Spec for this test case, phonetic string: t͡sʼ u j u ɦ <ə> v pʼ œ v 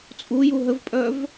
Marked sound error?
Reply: no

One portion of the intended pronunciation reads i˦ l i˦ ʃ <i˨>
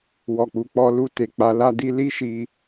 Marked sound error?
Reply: yes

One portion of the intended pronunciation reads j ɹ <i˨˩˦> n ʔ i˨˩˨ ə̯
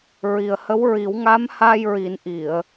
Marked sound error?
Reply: no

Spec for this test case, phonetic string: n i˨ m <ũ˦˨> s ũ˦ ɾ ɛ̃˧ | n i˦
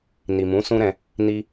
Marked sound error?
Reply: yes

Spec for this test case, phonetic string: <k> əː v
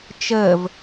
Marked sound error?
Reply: yes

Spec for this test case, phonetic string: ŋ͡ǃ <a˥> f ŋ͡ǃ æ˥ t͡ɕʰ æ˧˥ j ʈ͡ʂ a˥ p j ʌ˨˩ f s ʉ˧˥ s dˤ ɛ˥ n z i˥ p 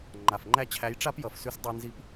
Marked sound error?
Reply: yes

